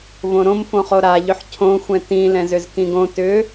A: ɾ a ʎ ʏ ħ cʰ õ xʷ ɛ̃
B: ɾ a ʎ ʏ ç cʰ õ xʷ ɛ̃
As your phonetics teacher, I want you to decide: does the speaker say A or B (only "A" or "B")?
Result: A